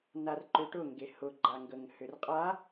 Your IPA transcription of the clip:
n a r ǃ ʏ ʈ ʊ ŋ ɡ e h ʊ ɡ͡ǃ a ŋ ɡ ə ŋ h ʏ r qʼ a

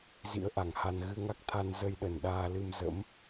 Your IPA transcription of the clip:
z ḭ˧˥ ə̯ ʔ a˨˩ ŋ h a˧ n ɣ ɨ˧ ŋ a˦˥ k̚ t̪ʰ a˧ n z ə˧ j ɗ ə˨˩ n ɗ aː˧ l ɨ˧ m z ə̰˧˥ m

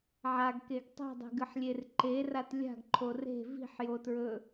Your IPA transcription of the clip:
ʕ a ɡ k e ɡ tˤ i̤ dˤ e̤ ɡ ɨ ħ lʲ e r ǃ e r a t lʲ a̤ ɡ ǃʰ o r e̤ v i̤ ħ j o t ɹ ɵ

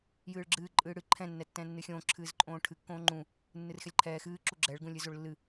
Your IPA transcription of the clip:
j ɨː ɭ ɡ͡ǁ ɨː ǃʼ ɨː ɽ ɨ ǃʰ ɛ̃ nː ɛ tː ɛ̃ː nː ɨ xʲ õː ǁʰ ɨː z ǃʼ õː ʈʰ ɨ kː õː ŋ͡ǃ ũ | nː ɨ r x ɛ lʲ ǃʰ ɛː x ɨː ǁ u ɡ͡ǁ ɛ ɭ ɡ ũ lʲ ɨ z o ɭ lː ɨ

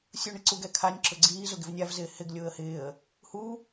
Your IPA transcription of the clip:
sʲ u ɳ ɪ ǀ u ɡ ɛ kʰ a nʲ ǁ ʊ ɡ͡ǀ iː z ʊ ɡ ɪ v nʲ a v z ɪː h ɪ ɡ lʲ ʊː ə̯ h ɪː ə̯ | h u

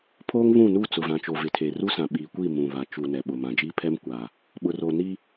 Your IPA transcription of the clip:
pʰ oː˦ ŋ β ũ˦˨ n u˦˨ t͡s ʊ˨ v ã˨ t͡ʃ o˨ v ɪ˨ tʰ e˨ r u˦ s ã˨ ɓ iː˨ kʷ i˦˨ m ũ˨ β a˨ t͡ʃ u˨ n ɛ˨ ɓ ʊ˨ m ã˨ d͡ʒ iː˦ pʰ ɛ˦ m kʷ a˨ | ɓ ʊ˨ r o˨ n i˦

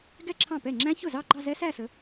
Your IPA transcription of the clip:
ɡ ɛ˥˧ ǁʰ ɑ̃˥˩ p ɛ˥˩ ŋ͡ǁ æ̃˦˥ ç ʊ˥˩ z ɑ˥˧ ɡ͡ǃ ɑ˥˧ z ɛ˦˥ s æ˥˧ s ə˨˦

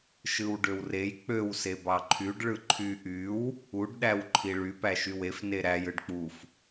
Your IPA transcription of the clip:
ʃ ɯ w ɖ ø w r e j k͡p ø w s e b ɑ ǃʰ y ɖ ɭ ɯ ǃʰ y ʔ y w | u ɖ ɗ æ w ǃʰ i ɭ y p æ ʃ y w e f n e ɾ æ j ɯ ɖ k͡p u f

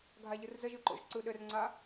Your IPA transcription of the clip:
ɡʱ a ʎ ɯ r z ə ʒ ɯ ǃ o̰ ʒ ǀ ɯ ɗ ɘ r ŋ͡ǀ a

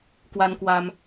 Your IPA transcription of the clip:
k w a˧ n k w a˧ m

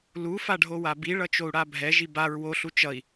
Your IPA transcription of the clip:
l u f a ɖʱ o w a b i ɭ ʌ t͡ʃ o u̯ ɽ a bʱ ɛ ʒ i b a ɹ w o ɬ u t͡ʃ ʌ i̯

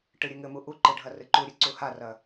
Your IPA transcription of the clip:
ʈ ɨ ɾʲ ɨ ŋ ɘ m u ʔ u ǃ ɨ ɖʱ ɐ r ɨ ǃ u ɾʲ ɨ ǀ u h a r ɐ

